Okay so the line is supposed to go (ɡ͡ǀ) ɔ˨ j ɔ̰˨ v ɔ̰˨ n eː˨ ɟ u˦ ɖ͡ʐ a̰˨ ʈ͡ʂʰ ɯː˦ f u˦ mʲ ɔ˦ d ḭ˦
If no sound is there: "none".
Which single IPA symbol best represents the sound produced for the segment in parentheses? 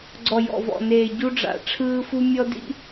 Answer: ɡ͡ǀ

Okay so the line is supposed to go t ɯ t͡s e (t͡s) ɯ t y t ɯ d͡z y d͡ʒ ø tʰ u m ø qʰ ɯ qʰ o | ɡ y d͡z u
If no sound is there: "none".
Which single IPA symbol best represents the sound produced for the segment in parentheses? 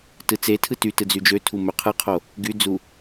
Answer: tʰ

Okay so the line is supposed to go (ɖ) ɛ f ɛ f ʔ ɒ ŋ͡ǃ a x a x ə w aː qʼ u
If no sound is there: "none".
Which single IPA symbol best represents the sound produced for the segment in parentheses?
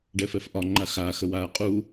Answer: ɖ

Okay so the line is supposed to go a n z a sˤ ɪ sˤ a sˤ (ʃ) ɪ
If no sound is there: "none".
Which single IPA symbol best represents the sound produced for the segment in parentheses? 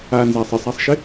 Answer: ʃ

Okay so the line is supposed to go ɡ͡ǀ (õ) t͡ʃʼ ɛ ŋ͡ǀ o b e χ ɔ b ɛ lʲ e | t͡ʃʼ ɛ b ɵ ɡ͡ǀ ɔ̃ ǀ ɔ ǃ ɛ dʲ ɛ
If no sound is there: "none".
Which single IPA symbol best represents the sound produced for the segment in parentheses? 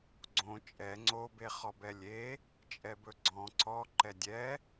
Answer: õ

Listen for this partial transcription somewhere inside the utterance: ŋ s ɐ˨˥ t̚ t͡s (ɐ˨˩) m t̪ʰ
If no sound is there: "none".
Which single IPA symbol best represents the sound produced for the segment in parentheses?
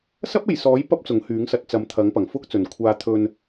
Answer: ɐ˨˥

